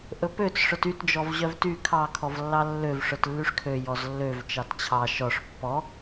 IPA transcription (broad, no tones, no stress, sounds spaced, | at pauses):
ʔ ɵ p ø t͡s ʂ œ t y t d͡ʒ ɔ v ʑ œ v t y kʰ ɑ kʰ ɔ v lː ɑ lː ø v ʂ œ t lː y ʂ kʰ ø j ɔ z lː ø v t͡ʃ ɑ t t͡ɕʰ ɑ ʃ ɔ ʂ pː ɔ